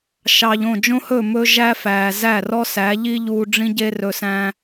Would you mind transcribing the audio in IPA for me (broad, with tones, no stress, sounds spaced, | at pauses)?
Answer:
ʃ ɑː˨ ʎ õ˦˨ d͡ʒ õ˦ h ɵː˦˨ m ɵ˦ ʒ æ˦ f æː˨ z æ˦˨ r ɔ˦ s æ˨˦ ʎ i˦ ʎ uː˧ ɖ͡ʐ ĩ˦ ɟ e˦ r ɵ˧ s æ̃˦